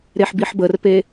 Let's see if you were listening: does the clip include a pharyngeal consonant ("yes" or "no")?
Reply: yes